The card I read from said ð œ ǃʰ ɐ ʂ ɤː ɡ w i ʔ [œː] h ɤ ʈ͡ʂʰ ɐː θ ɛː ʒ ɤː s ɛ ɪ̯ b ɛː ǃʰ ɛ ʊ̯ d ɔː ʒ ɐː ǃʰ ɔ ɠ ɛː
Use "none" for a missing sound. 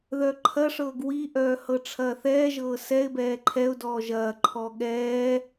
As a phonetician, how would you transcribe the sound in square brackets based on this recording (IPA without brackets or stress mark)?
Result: œː